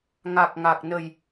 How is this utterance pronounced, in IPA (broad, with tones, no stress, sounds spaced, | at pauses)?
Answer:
ŋ a˨˩ k̚ ŋ a˨˩ k̚ n ə˨˩ j